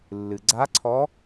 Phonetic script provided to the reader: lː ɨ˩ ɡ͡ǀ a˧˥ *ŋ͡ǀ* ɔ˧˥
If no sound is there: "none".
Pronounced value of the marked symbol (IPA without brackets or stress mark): ǀʰ